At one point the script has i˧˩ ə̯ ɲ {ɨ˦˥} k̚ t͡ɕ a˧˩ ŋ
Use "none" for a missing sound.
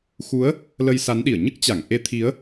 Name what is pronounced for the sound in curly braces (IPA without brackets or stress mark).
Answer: ɨ˦˥